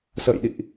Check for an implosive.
present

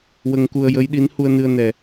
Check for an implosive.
present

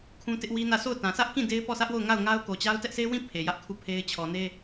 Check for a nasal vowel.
present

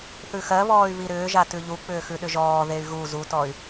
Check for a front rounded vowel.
present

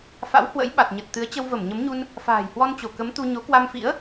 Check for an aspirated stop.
absent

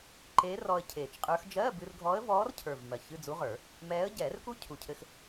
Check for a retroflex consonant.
absent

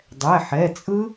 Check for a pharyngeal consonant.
present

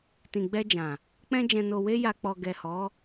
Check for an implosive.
absent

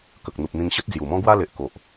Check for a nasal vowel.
present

